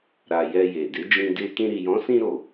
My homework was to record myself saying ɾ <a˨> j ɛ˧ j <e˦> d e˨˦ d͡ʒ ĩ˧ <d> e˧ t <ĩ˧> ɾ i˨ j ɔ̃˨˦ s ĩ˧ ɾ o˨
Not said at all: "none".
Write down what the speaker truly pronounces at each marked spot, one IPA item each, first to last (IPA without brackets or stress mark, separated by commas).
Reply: a˨, e˨, d, ĩ˧